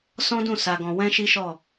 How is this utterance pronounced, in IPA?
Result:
s ɔ̃˦ d ũ˦˨ s a˧ ɡ ɔ̃˧ w ɛ̃˦ ʃ i˦ ʃ ɔ˦˨

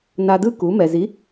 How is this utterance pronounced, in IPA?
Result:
n a˧ d ɯ˥ k u˩˥ m ɛ˩ z i˩˥

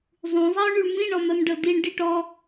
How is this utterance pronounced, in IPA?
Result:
zˤ ũ zˤ ɜ ʊ̯ ɳ y ɭ m ĩ ɳ ɔ m ɜ m ɖ ɤ d i ɳ ɖ i ʈ ɔ

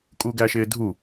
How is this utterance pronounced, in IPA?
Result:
kʼ u ɡ æ ʃ ɪː dʱ u

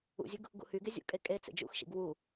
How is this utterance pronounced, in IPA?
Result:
ṵ zʲ ɯ ɡ | ɡ ṵ h y ɡ e zʲ ṵ kʼ e kʼ e t͡s ḛ d͡ʒ ṵ x ʃ ḭ ɡ w u

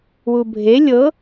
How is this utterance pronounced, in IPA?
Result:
w u bʱ e lʲ ɤ

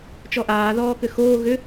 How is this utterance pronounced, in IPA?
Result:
t͡ʃ ɔ ʔ aː ð ɔː k ʏ x oː ɣ ʏ

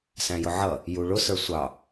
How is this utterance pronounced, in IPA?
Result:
s æ̃ j ʊ ʕ ʌ | j u ɭ ʊ s ə˞ sʷ ɑ

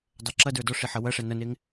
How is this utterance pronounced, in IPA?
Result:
dˤ ɛ ǁ ɐ d ə˞ d ɔ ʂ i ħ ɐ w ɐ ʂ ɛ n ɐ n e ŋ

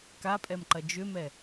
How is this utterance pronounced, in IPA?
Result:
k a pʼ ɛ m ǃ ɐ d͡ʒ ʏ m ɛ

